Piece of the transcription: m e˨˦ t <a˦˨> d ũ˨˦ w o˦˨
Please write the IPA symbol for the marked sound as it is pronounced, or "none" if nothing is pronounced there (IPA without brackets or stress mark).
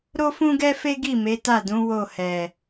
a˦˨